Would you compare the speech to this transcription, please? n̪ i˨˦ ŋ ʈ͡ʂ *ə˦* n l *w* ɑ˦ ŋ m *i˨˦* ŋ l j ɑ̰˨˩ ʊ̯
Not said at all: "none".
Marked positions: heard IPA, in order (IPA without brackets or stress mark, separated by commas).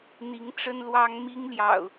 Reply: ə˦, w, i˦